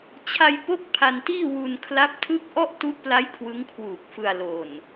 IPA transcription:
t͡ɕʰa˧j po˥˩k̚pʰa˧ntiː˥˩ wu˧n kʰla˦˥p̚tʰɯ˥˩k̚ ʔɔ˥˩ʔtu˦˥ʔpla˦˥j kʰwɯ˦˥ŋkʰwuː˨˩k̚fɯ˧a̯ lo˨˩n

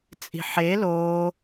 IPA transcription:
t͡sʼi̤ħe loː

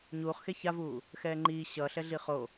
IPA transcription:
ɲuːχxe çavuː | xɛːŋ͡ǃiː ɕʌ ɬɛɮiχo

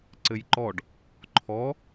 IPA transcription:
ǀɘjǃɔɖ | ǃʰɔ

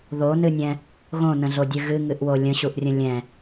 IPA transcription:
ðonɨnʲɛ̃ | ɣõnə̃ɮodʲɨ ɣɨŋɨʔwo lʲə̃ɕuʔrʲə̃ lʲɛ̃

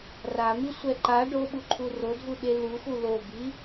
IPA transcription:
ramisʷɛ ǃa ɖoɓuǃʰu rodʱuɓe luxu lobi

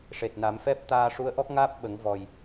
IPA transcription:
ʂe˨˩t̚na˨˩˦mfɛ˦˥p̚ t̪aː˧ʂu˧˥ə̯ʔɔ˦˥k̚ŋaː˦˥p̚ ɓə˨˩˦ŋ vɔ˨˩j

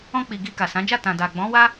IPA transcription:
ɔ̃˧k͡pi˨ ɡi˧ka˨sã˨˦d͡ʒa˦˨ tã˨da˨ ɡ͡bɔ̃˨˦wa˦

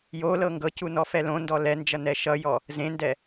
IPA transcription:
jolɤ ŋɡɤcu nɔfɛlõndɔ lɛnd͡ʒʌ nɛʃʌjɔ | zẽndɛ

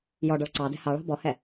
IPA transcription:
jɔɖɔɭ ǀɑdɛ̤ hɑɭɑ̤ bɔhɛ

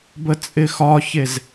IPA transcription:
bət͡sʼɪxɒçez

